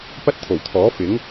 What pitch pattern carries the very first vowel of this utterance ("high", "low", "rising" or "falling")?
high